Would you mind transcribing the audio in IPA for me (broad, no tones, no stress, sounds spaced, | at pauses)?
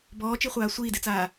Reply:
b ɔː t͡ʃ i χʷ aː sʷ iː d e t͡s aː